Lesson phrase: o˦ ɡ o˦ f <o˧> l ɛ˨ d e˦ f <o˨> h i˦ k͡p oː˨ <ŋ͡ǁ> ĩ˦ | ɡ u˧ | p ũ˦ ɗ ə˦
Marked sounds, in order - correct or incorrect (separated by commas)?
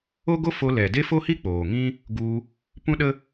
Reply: correct, incorrect, incorrect